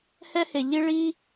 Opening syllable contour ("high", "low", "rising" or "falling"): high